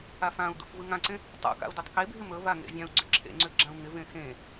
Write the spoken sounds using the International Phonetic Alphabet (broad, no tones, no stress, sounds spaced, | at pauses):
a f ã u̯ d̪ ṵ f v ɯ ŋ ã ǀ ẽ | tˤ ṵ k a̰ u̯ d ɪ tˤ k e bʱ ɪ m ɵ v a ŋ ḛ vʲ ã u̯ ɡ͡ǀ ʏ ǁʰ ḛ ŋ͡ǀ ʏ ɡ͡ǁ ã u̯ ŋ ɪ v ẽ x ẽ